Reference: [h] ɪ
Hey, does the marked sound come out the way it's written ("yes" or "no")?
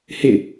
yes